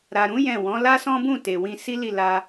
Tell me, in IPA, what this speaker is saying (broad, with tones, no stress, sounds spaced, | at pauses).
ɾ a˨ ɾ ũ˨˦ j ɛ̃˦˨ w ɔ̃˨˦ l a˦ s ɔ̃˦ b ũ˦˨ t e˨ w ĩ˧ s i˦ l i˦˨ l a˧